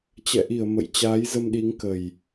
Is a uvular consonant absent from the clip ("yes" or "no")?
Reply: yes